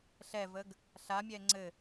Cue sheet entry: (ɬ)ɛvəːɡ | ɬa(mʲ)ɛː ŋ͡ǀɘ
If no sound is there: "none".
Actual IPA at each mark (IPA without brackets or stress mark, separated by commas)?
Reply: ɬ, mʲ